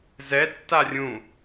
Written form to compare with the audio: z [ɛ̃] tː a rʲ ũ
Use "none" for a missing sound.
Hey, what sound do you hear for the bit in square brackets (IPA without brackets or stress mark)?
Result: ɛ